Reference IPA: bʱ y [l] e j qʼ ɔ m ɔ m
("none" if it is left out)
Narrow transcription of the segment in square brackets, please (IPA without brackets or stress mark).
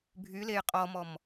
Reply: l